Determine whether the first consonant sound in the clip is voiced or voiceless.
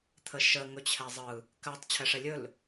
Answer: voiceless